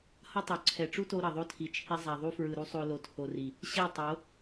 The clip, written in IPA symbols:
hʌ˦tˤo˨ ǀʰɛ˨ʈ͡ʂu˦to˧ ɾʌ˨ðˤo˦tʰi˨t͡ʃʰi˧ zˤa˨ðˤu˧fɹɯ˨ɾu˧ sˤo˦ lo˨tʰo˨ri˨ | ɕɛ˦˨tˤo˨˦

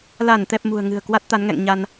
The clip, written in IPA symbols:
la˧˩n t̪ɛ˨˩p̚ mṳ˨˩ə̯ŋɨ̤˨˩ə̯ kwa˦˥t̚t̪a˨˦nŋɛ̰˧˨ŋ ɲa˧n

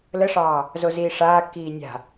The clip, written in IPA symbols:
ləʂɑː | zoziːʂaːkːiː nʲa̤

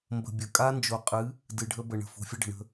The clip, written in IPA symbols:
mbə̤˨ bʲə˨ kʼa˦nd͡ʒo˨qʼɨ˨˦ | dɨ˨ɖʱə˦bə˨ ɳə̤˨fo̤˨fʲə˦ ɖə̤˨ɳə̤˦

